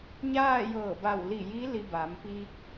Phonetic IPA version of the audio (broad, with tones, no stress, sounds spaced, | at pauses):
ɲ aː˥˨ j ɤː˧˩ b a˧˩ w l i˧˩ j i˧˥ l i˧ b a˩˧ m p iː˧ k̚